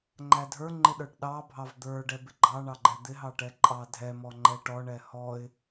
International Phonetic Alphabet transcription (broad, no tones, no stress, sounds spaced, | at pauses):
ŋ͡ǃ æ dʱ ə˞ ŋ͡ǃ ɪ ɗ ə˞ ʈ ɗ ɑ bʱ ɑ v d̪ ə˞ ɖ ɛ b ɪ ɡ͡ǃ ɑ ɳ ɑ ɡ͡ǃ ɛ d̪ ɪ ɦ ɑ ʈ ɛ ǃʼ ɑ dʱ ɛ m ɔ ŋ͡ǃ ɛ ʈ ɔ ɳ ɛ h ɔ ɪ̯